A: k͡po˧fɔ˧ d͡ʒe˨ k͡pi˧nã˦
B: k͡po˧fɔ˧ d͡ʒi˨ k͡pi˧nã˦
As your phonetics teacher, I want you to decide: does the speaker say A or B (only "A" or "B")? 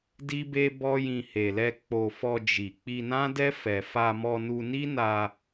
B